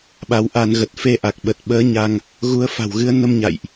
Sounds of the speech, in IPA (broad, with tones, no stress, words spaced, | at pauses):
ɓa˨˦wʔa˧nɣə˨˩t̚ fe˧ʔa˨˩k̚ɓə˨˩t̚ɓəː˨˦ ɲa˧ŋ | ɣu˨˦ə̯fa̤˨˩wɣɨ˨˦ə̯ nə˧mɲa̰˧˨jʔ